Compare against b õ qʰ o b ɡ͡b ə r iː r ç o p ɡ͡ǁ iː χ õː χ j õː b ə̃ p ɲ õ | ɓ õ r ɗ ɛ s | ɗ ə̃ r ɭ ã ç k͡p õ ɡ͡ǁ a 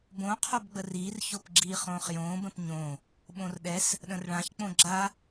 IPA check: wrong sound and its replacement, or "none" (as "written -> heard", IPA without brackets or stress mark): none